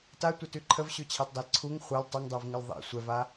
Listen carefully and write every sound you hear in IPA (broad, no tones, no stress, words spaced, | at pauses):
tatʷətʉ ǃʰəvɕʉt͡ɕʰɑtdˤal ǀʰuŋ χʷal tˤuŋdˤuvŋɘl ðˤḭ sʷɛva